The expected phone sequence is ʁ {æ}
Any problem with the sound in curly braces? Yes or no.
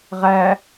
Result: no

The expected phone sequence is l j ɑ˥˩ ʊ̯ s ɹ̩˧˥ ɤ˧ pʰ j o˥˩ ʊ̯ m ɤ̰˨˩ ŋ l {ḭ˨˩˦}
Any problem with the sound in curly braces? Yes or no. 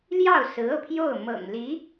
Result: yes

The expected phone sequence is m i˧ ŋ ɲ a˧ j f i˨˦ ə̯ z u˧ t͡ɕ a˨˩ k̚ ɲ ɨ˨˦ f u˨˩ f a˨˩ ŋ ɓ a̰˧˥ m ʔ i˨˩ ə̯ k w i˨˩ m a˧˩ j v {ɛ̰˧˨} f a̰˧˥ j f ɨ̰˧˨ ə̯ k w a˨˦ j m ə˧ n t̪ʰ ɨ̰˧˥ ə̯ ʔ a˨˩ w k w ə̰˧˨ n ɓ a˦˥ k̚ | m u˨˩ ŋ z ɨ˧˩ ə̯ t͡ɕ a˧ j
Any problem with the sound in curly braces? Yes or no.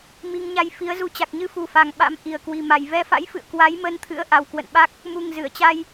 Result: yes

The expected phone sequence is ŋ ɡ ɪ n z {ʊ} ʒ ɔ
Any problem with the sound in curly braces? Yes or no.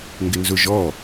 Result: no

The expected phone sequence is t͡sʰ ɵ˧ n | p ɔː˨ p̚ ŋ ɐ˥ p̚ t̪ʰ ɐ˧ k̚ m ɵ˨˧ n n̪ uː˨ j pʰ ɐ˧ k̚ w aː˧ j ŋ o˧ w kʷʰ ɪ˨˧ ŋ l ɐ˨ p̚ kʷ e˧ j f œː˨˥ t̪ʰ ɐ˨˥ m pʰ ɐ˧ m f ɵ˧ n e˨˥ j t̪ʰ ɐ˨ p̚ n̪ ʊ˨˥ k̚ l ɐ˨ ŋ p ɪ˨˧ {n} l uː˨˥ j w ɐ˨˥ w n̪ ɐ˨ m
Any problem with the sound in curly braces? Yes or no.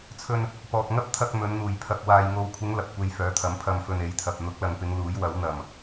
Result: yes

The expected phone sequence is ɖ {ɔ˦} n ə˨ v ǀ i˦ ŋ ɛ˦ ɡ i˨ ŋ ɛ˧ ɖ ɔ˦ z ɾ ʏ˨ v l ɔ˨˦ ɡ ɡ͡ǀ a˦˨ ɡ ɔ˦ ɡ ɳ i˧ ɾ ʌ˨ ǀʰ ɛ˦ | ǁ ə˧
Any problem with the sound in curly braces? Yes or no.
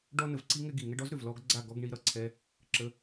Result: no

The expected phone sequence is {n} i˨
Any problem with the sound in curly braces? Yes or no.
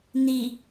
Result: no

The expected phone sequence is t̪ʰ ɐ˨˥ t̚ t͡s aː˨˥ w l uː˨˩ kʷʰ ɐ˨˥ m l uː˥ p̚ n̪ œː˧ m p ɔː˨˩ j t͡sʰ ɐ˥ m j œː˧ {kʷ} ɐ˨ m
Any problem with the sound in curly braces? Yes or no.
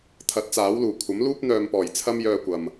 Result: no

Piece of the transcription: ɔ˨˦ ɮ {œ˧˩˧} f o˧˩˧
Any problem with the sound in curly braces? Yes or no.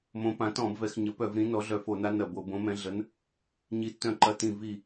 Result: no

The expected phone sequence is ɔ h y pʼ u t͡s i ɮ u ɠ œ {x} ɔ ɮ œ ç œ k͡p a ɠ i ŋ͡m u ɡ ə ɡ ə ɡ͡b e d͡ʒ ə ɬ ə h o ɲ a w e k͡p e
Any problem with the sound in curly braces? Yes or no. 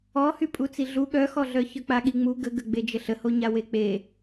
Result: no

